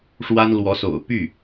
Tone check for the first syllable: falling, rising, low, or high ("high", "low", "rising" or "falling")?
high